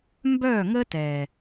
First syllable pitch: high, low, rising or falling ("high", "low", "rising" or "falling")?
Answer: falling